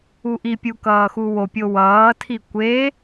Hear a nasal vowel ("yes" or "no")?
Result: no